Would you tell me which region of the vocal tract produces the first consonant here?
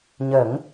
palate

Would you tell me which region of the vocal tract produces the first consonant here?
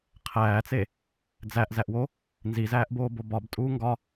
uvula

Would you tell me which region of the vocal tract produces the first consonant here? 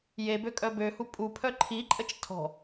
palate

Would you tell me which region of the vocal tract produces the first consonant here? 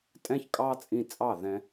tongue tip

